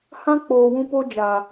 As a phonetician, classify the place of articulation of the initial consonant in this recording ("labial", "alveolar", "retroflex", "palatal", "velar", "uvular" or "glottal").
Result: glottal